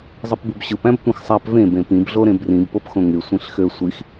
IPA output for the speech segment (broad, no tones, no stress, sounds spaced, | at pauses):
zˤ ɯ p b u b ɕ ɯ p æ̃ b tʷ ĩ x sˤ æ p v ẽ b ẽ p ĩ b ɮ o ɾ ẽ b r ĩ b p o p x õ ŋ y sʷ ĩ ɬ x ø sʷ i x